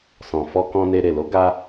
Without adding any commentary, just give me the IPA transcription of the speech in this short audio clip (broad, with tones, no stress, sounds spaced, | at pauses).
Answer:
s ɔ̃˨ f ɔ˧ k ɔ̃˧ n e˧ ɾ e˨ l o˨˦ ɡ a˧